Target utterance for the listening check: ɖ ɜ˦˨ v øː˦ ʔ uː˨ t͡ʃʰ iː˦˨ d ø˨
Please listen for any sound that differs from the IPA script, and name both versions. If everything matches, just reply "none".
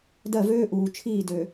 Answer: ɖ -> d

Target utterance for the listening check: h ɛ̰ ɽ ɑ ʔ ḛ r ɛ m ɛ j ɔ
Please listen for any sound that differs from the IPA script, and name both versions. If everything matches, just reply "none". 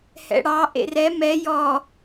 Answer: none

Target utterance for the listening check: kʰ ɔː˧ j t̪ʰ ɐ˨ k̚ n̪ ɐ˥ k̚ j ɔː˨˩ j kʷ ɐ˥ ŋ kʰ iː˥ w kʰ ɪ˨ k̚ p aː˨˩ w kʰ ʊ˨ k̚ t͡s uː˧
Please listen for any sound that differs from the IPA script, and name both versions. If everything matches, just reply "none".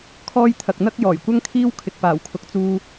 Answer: none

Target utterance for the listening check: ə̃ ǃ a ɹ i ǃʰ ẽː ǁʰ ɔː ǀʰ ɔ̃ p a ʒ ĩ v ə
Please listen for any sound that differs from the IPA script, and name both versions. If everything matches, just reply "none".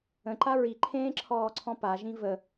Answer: none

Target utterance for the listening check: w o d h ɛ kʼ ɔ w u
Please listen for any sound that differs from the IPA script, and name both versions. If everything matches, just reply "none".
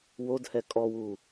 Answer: none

